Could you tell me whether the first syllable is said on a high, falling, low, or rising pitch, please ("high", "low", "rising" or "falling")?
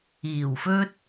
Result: low